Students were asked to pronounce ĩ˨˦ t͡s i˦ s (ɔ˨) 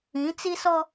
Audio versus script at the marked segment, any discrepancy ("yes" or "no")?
yes